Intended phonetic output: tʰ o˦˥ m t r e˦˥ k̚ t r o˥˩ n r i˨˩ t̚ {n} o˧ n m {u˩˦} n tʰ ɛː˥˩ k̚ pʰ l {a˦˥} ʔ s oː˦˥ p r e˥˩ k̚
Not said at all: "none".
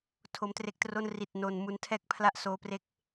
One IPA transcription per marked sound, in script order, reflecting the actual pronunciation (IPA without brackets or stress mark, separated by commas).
n, u˦˥, a˥˩